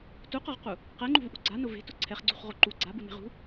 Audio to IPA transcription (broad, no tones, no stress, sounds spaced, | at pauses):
t u q ɔ ʁ q u | q ɛ ŋ͡ǃ ṳ v ʔ ṳ ɡ͡ǀ a n ʊ v e̤ t ʊ ǀʰ ɛ χ ɡ͡ǀ ṳ χ ʁ o ǃ u ɡ͡ǀ a b u n e̤ ʁ ṳ